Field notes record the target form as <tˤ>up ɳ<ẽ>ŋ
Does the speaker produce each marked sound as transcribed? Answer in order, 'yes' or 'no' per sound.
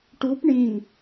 no, no

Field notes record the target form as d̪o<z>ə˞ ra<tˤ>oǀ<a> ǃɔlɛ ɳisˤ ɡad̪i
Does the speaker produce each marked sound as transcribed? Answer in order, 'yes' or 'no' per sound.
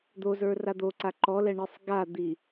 yes, no, yes

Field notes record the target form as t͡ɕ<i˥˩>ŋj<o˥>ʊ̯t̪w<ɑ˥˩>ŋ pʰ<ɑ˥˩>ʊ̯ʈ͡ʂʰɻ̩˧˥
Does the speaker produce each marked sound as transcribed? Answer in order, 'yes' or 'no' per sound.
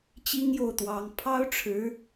no, no, no, no

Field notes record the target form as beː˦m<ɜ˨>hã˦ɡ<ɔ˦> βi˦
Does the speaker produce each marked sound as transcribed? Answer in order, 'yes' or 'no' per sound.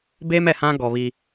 no, no

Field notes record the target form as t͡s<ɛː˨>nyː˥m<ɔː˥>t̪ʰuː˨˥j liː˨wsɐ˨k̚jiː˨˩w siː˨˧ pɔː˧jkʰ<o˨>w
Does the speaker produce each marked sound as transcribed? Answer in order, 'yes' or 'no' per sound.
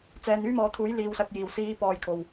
yes, no, yes

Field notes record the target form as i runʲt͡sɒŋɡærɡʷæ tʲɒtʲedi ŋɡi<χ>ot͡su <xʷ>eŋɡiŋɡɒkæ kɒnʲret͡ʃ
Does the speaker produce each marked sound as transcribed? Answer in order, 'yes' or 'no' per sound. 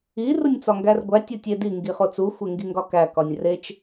yes, yes

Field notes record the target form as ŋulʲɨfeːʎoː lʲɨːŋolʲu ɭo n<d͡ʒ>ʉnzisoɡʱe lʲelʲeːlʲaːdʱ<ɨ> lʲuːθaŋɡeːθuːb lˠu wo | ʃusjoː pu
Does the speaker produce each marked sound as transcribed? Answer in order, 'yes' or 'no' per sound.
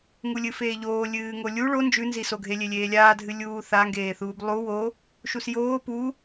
yes, yes

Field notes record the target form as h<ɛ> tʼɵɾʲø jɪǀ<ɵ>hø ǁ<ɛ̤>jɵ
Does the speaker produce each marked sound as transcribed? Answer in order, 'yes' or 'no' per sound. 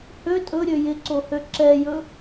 no, no, no

